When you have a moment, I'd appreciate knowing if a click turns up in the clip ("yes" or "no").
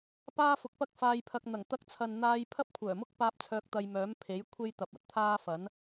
no